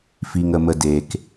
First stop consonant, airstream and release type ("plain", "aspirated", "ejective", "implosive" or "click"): plain